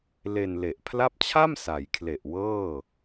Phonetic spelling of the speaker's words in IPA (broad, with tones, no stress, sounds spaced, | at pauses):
l e˧ n l e˨˩ ʔ pʰ l a˦˥ p̚ t͡ɕʰ a˥˩ m s a˩˦ j kʰ l e˨˩ ʔ w ɤː˥˩